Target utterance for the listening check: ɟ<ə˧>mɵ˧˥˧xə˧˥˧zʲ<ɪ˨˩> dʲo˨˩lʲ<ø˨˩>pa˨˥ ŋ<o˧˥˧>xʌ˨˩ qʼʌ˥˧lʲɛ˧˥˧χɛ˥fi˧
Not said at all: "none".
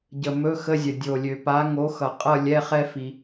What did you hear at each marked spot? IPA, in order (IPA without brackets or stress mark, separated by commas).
ə˨˩, ə˨˩, ø˨˩, o˨˥